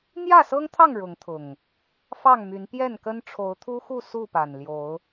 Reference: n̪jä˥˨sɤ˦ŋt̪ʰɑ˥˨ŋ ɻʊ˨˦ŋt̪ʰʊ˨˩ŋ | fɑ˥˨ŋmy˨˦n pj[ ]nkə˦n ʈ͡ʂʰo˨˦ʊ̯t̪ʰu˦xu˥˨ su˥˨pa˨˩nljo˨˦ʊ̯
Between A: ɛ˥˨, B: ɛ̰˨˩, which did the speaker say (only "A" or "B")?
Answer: A